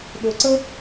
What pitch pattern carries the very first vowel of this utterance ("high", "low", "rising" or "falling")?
low